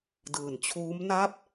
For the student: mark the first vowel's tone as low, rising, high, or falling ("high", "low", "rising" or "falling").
low